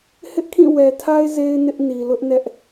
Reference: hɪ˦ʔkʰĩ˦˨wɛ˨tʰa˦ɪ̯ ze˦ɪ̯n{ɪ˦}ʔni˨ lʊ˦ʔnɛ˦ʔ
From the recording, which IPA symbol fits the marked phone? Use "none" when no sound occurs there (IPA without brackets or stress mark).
ɪ˦